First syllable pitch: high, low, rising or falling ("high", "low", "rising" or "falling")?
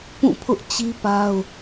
falling